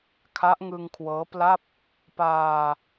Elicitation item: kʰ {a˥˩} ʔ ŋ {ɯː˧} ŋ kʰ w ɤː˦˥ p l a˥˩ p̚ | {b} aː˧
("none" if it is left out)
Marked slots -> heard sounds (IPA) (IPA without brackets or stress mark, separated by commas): a˦˥, ɯ˧, p